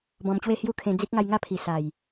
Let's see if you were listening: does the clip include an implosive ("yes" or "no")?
no